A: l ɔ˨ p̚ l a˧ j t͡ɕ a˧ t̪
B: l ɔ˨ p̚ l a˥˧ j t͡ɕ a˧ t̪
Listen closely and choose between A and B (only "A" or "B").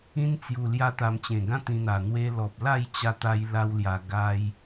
B